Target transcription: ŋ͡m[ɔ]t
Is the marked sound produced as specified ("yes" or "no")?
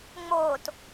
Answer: no